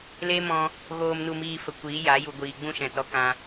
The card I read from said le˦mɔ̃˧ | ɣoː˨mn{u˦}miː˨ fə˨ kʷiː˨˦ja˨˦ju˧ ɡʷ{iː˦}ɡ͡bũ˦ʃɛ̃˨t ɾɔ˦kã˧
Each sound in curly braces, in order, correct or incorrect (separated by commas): incorrect, incorrect